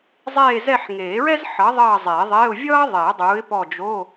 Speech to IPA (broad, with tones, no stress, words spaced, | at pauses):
zˤeː˦˨zɛ˦˨ħŋeː˨˩˦ɹɛ˥z ħʌ˨˥ ðˤʌː˦˨zˤe˨˩˦ðˤe˧˥˧ʊ̯ vʲʌː˥ðˤe˨˩˦ə̯ dˤuː˨˥ɪ̯pɔ˦˨d͡ʒo˧˥˧